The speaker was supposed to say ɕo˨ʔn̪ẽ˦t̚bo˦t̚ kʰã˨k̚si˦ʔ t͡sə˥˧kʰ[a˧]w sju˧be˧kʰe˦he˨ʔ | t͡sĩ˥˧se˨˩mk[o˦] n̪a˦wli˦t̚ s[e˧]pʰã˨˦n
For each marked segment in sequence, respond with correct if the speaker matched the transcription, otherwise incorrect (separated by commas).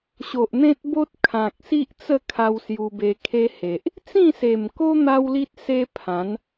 correct, correct, incorrect